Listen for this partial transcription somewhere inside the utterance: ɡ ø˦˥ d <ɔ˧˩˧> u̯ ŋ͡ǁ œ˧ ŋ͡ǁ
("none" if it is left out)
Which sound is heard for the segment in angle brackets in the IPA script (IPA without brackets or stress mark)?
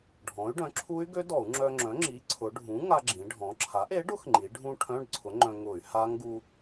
ɔ˧˩˧